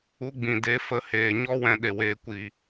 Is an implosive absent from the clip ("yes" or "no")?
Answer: no